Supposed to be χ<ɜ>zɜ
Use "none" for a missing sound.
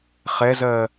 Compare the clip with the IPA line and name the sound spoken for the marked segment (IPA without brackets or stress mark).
ɛ